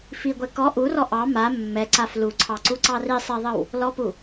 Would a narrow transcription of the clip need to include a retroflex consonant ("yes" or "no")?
no